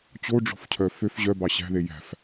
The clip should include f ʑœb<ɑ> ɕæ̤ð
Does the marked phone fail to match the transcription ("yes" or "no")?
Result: no